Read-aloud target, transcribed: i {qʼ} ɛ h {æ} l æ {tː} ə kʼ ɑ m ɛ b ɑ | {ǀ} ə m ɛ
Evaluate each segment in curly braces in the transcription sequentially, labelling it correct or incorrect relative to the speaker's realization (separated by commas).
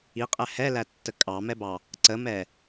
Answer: correct, incorrect, correct, correct